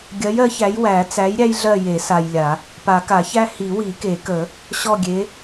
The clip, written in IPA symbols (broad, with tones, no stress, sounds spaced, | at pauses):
ɡʲ ɜ˨˥ j ɜ˨˥ ç æ˨˥ j w æ˨˩˦ t͡s æ˨˥ j ɾʲ æ˥ j ɮ ɜ˦˨ j e˨˩˦ s a˨ j lʲ a˨˩˦ | p a˨˩˦ k a˨˩˦ ç æ˥ h i˨˩˦ w i˨˩˦ k e˨˩˦ k ə˨˩˦ | ɕ ɔ˦˨ ɡʲ e˨˥